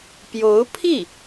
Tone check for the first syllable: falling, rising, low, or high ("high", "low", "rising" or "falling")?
rising